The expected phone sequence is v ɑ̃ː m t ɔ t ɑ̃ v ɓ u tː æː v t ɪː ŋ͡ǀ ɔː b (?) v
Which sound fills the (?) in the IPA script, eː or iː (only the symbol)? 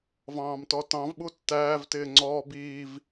iː